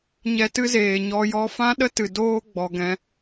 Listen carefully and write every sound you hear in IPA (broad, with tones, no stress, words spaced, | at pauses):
ɲɛ˧tɨ˦zeː˨ ɲɔ˧jɔ˦ fã˦ɗə˦tɨ˨ doː˦ɡ͡bɔ˨ɡɛ̃˧